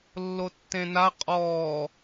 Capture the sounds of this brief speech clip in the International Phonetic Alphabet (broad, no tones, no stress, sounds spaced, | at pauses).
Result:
lː o tː ẽ n a qʼ ɔː